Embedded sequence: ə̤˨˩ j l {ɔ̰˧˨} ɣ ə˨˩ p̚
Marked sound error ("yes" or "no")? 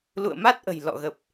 no